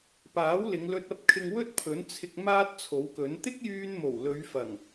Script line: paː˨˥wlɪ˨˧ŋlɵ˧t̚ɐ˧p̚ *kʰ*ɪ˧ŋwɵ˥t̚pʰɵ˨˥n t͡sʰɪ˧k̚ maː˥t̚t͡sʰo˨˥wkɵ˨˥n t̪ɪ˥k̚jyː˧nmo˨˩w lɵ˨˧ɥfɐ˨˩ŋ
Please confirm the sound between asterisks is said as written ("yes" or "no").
yes